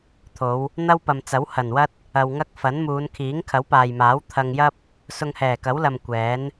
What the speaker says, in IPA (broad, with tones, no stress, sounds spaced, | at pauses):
t̪ʰ o˨˧ w | n̪ ɐ˥ w p ɐ˨ m t͡s ɐ˨˥ w h ɐ˨˩ n w ɐ˥ t̚ | ɐ˧ w ŋ ɐ˥ k̚ f ɐ˨˥ n m uː˨˧ n kʰ iː˨˥ ŋ kʰ ɐ˨˥ w p aː˨ j m aː˨˥ w t̪ʰ ɐ˧ ŋ j ɐ˥ p̚ | s ʊ˧ ŋ h ɛː˨˩ k ɐ˨˥ w l ɐ˨ m kʷ ɛː˨˥ n